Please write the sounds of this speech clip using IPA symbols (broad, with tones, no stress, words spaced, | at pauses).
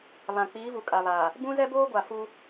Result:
βã˨ k͡piː˨˦vu˨kʼa˨βa˨ | bũ˦zɛ˦boː˦ɡʷa˨ fu˦